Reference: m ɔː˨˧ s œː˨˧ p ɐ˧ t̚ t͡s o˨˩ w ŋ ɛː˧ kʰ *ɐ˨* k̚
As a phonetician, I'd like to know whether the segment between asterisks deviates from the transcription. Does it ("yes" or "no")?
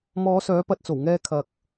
no